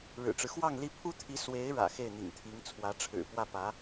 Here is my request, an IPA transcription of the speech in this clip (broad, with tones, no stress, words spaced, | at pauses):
ɻɻ̩˨˩ʈ͡ʂɻ̩˦xwɑ˥˧ŋli˥˩ pʰu˥t̪ʰi˧˥ swe˧˥ɪ̯ɻä̰˨˩ xe˥˩ɪ̯n̪ḭ˨˩ŋ t̪ʰi˧˥ŋ t͡sʰwä˧˥ʈ͡ʂʰɻ̩˨˩ pwä˥˩pä˧˥